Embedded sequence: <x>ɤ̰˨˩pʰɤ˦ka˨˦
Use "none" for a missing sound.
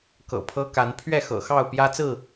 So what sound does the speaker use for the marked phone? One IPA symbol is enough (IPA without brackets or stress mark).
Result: k